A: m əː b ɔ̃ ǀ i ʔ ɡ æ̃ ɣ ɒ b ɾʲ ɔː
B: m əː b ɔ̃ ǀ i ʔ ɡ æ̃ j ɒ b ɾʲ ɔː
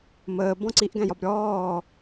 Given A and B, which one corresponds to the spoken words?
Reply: B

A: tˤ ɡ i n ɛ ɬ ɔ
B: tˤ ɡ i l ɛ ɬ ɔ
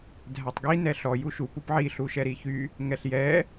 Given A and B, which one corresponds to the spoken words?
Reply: A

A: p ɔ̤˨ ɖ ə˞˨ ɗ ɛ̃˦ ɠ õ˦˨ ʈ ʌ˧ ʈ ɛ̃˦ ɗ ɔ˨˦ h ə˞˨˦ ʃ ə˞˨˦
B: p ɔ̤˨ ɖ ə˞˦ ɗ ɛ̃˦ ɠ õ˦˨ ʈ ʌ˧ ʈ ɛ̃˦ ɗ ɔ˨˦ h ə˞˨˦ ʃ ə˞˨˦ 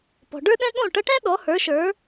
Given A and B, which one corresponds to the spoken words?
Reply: B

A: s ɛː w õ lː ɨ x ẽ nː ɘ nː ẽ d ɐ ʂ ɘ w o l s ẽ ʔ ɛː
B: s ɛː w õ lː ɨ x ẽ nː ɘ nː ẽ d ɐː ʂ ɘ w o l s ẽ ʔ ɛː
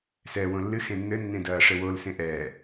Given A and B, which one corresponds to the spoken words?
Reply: B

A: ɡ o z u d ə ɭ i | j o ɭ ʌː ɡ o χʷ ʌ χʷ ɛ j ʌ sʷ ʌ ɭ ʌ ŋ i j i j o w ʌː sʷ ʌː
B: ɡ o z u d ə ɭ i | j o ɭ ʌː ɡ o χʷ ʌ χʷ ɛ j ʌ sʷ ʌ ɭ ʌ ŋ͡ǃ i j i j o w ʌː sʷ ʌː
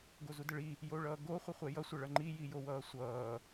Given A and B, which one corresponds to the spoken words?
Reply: B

